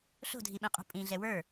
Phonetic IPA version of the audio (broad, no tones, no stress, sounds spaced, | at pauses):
ɬ o̤ dʱ i ɓ ĩ qʼ ṳ pʼ ĩ ɮ ɛ w ə˞